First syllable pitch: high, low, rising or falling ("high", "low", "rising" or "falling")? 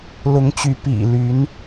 rising